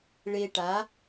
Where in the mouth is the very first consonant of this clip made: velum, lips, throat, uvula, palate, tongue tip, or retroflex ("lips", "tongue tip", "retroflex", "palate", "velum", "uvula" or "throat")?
retroflex